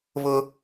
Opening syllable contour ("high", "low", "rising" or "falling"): high